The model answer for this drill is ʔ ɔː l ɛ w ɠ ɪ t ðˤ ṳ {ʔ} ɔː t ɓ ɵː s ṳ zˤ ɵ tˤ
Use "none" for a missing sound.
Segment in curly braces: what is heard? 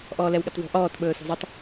ʔ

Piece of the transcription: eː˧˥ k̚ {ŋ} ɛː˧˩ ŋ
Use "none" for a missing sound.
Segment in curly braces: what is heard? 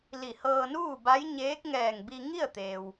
ŋ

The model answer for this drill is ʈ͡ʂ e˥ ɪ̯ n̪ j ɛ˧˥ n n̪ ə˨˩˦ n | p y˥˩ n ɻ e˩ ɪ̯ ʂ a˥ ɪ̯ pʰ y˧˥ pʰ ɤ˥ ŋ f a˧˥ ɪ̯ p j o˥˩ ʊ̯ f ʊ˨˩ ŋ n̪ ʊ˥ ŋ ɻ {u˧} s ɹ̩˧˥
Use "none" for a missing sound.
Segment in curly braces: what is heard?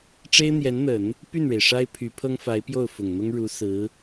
u˧˥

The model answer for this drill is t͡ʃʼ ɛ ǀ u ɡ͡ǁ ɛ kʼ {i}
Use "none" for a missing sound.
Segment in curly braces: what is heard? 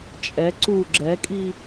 i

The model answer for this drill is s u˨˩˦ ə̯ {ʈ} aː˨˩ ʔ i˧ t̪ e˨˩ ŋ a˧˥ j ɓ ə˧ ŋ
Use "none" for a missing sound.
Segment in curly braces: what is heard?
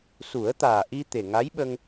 t̪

